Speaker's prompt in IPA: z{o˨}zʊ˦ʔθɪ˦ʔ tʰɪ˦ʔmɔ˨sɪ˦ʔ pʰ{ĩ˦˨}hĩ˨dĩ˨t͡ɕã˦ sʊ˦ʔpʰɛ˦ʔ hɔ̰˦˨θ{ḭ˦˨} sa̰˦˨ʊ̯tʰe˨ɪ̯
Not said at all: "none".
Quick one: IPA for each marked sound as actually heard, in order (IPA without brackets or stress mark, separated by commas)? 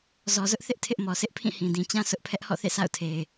ɔ˨, ĩ˦˨, ḛ˦˨